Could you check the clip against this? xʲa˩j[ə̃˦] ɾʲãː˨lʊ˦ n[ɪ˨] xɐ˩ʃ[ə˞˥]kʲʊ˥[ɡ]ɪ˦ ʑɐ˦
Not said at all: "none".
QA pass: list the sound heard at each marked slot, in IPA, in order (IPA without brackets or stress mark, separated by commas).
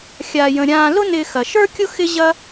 ə̃˩, ɪ˨, ə˞˥, x